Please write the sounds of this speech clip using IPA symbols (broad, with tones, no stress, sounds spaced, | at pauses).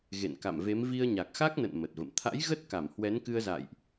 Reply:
ɣ ḛ˧˨ n k a̰˧˨ m v e˨˦ m v i˧ ə̯ ɲ a˨˩ k̚ x a˦˥ k̚ n ə̰˧˨ n m ə˨˩ t̚ v ə̰˧˨ m t̪ʰ a̰˧˥ j ɣ ə˦˥ t̚ k a˧˩ m h w ɛ˨˦ n k ɨ˧ ə̯ z a̰ː˧˨ j ʔ